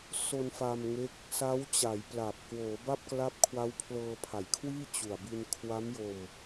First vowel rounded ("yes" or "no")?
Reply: yes